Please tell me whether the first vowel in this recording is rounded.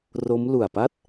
yes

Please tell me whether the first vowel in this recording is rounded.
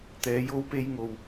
no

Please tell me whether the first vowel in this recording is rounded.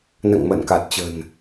no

